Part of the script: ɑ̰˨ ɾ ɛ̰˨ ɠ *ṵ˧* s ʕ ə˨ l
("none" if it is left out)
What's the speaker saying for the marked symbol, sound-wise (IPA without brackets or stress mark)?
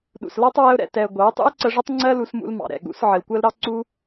ṵ˨˦